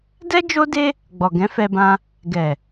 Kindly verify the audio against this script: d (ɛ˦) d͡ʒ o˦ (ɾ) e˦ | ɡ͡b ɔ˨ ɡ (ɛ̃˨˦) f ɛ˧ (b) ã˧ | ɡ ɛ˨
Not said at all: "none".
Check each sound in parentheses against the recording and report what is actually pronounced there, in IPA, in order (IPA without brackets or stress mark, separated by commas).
ɛ˦, d, ɛ̃˨˦, b